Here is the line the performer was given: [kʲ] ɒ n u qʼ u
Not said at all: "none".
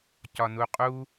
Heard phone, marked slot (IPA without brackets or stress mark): c